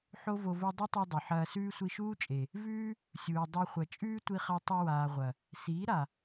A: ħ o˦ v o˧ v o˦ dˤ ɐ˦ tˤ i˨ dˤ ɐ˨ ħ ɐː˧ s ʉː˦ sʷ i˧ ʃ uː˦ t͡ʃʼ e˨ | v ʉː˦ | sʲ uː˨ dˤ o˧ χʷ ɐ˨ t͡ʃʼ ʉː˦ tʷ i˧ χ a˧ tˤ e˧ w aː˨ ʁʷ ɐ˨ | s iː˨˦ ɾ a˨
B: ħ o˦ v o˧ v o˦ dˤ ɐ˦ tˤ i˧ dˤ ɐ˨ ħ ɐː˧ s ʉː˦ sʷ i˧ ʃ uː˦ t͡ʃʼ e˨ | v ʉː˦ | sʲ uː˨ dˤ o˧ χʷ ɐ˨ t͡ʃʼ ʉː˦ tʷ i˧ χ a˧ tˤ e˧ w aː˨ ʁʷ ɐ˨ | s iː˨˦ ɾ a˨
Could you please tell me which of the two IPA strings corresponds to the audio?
B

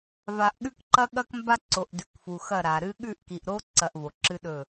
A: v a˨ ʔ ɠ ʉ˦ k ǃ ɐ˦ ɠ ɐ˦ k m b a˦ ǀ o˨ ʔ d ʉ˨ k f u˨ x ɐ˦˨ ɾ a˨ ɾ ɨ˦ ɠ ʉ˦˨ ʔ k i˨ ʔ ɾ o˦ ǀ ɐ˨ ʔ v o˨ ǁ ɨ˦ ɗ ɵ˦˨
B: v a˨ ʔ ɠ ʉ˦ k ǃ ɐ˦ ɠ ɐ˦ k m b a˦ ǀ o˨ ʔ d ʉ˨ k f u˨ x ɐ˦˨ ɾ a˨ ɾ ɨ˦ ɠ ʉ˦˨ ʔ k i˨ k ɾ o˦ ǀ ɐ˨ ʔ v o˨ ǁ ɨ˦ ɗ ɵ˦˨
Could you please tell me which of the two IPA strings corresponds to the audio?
A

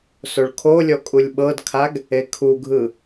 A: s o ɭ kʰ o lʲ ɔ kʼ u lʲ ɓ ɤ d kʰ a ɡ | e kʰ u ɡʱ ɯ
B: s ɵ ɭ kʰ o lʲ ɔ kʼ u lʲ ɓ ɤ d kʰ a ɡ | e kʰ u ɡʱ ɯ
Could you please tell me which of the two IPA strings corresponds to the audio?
A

